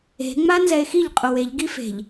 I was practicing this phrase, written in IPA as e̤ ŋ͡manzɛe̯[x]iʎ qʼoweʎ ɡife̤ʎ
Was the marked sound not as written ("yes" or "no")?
no